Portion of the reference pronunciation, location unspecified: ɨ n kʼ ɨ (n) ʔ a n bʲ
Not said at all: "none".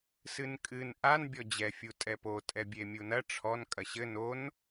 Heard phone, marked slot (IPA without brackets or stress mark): n